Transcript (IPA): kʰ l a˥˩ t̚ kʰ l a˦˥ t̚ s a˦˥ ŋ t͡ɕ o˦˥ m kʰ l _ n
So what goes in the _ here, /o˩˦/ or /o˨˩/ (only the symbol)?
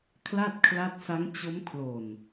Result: o˨˩